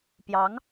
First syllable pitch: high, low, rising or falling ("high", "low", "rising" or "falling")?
rising